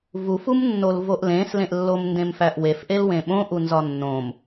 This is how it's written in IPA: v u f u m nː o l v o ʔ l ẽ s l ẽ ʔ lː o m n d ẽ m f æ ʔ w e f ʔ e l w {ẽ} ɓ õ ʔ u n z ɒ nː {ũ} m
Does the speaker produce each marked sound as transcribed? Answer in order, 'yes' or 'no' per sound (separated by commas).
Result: yes, no